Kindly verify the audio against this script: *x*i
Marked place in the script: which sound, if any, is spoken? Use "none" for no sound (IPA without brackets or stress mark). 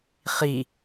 χ